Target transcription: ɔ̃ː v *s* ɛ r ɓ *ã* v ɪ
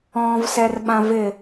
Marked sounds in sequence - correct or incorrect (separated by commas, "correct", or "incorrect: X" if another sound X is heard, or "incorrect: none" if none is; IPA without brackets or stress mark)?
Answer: correct, correct